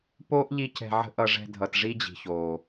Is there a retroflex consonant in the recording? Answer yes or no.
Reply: yes